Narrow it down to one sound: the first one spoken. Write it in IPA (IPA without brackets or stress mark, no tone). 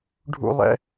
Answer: ɖʱ